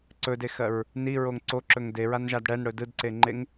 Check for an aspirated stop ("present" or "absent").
absent